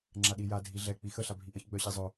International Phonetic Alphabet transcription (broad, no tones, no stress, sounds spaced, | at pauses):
ŋ͡ǁ a ɗ i j a dʱ i ɮ ɛ k͡p i x ə ɬ a bʱ i ʔ ə ç ɡ͡b œ ɕ i zˤ œ